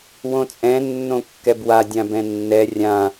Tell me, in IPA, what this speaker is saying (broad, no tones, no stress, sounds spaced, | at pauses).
w õ t͡sʼ ɛ̃ nː õ kː ɛ b w a dʲ ã b ɛ̃ nː ɛ rʲ ã